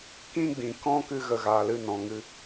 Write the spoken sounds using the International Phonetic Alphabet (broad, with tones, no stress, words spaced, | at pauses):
kĩ˦ɡ͡bĩ˨ kɔ̃˦ kɨ˦ ɣə˨ɣaː˨l ɨ˦˨nɔ̃˨ŋɨ˧